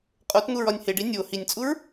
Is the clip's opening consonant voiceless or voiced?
voiceless